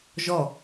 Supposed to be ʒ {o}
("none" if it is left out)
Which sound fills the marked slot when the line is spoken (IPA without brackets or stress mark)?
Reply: ɔ